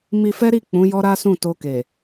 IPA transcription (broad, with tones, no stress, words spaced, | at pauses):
mi˧fɛ˦ɾi˦˨ k͡pũ˨˦jɔ˦ɾa˦ sũ˦˨to˧ke˨